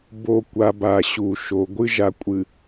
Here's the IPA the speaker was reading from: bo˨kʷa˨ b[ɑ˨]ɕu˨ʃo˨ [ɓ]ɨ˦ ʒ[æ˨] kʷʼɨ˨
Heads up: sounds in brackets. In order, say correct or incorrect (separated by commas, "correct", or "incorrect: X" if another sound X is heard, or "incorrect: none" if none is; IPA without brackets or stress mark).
incorrect: a˨, incorrect: ɡʷ, incorrect: a˨